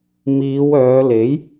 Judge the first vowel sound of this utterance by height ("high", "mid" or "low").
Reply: high